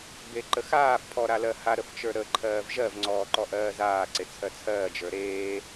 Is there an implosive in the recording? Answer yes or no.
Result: no